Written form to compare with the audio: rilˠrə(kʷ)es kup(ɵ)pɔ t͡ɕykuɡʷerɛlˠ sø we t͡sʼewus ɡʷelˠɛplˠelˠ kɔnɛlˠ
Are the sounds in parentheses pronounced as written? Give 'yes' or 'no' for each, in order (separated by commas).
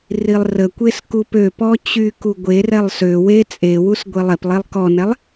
yes, no